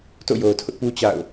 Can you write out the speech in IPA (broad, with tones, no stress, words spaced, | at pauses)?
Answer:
to̰˦˨jo˨ʊ̯tʰʊ˦ʔpu˦ t͡ɕa̰˦˨ʊ̯